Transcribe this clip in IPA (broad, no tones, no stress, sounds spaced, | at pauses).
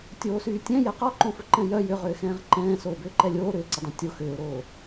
tʲ oː s yː tʲ ɛ̃ j ɛ q ɔ ǃ õ f ʊ ǃ ɛ̃ j œ j ʏ ʁ ʏː x ɛ̃ː ʁ ǃ ɛ̃ː s oː b ʏː ǃ ɛ lʲ oː ɾ ʏː ǀ ʏ dˤ ẽ tʲ o x ʏː ʊ̯ ɾ oː